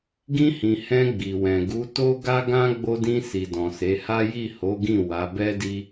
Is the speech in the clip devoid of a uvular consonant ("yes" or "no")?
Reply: yes